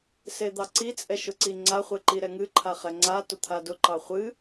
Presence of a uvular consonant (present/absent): present